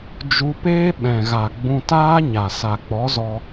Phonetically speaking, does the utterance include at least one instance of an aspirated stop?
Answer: no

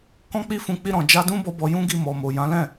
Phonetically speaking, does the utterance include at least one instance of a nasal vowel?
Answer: yes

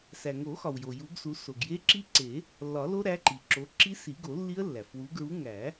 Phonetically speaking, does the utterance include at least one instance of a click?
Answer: yes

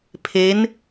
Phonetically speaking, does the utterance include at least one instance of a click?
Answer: no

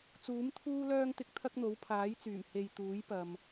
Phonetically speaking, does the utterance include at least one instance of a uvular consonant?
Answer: no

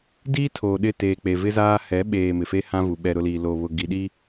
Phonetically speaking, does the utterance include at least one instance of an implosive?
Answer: yes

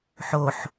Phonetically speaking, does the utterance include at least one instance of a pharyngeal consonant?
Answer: yes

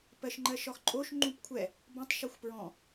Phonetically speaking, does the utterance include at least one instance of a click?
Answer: yes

